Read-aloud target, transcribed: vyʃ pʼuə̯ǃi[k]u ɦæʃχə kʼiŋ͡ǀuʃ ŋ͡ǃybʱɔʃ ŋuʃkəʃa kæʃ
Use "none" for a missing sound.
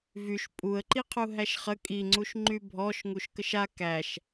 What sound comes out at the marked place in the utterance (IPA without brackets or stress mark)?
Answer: qʰ